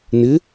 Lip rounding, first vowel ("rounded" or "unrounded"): unrounded